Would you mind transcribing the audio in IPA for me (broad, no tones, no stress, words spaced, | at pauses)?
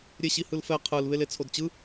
ɾʲeɕihɯlfɛ qʰɯl βelet͡sʰodt͡ɕɯ